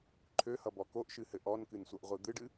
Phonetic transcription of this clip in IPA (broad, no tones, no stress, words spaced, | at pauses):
ǃʰøhʌbɔ koʔʃɨhɘ ʔɔnkɨnsʷʌʔʁʷɨ d̪ɨɖɨ